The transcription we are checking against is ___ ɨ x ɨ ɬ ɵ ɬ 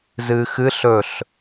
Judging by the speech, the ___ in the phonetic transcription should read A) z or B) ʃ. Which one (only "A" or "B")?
A